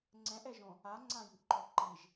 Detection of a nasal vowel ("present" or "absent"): present